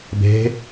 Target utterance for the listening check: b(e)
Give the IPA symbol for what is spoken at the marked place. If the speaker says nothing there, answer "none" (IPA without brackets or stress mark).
e̤